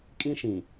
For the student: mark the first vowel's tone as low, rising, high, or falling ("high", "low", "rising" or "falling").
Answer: high